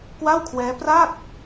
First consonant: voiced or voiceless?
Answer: voiceless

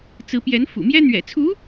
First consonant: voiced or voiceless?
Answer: voiceless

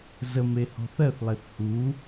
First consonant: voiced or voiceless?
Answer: voiced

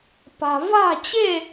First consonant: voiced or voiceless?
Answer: voiceless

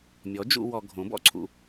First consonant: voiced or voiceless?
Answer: voiced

